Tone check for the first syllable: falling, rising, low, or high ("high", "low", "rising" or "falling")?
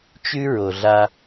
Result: high